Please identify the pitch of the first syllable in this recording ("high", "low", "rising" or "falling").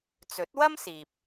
rising